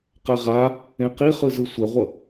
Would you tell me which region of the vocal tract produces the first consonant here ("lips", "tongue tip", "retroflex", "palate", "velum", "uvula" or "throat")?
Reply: uvula